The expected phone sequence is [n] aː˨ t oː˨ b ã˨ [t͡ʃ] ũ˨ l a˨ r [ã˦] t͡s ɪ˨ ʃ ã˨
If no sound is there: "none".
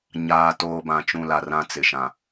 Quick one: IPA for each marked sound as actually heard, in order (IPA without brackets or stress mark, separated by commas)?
ɲ, t͡ʃ, ã˦